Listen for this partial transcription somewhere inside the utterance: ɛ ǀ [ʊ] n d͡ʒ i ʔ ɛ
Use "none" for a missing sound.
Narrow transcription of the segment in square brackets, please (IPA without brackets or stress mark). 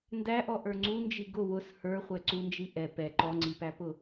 u